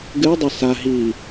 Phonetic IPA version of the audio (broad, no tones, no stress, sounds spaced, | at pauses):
ɡ ɨ ɐ̯ dˤ a s a ɦ i